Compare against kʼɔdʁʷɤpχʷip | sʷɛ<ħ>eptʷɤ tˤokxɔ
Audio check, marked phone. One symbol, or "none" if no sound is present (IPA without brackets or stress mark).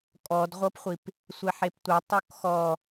ħ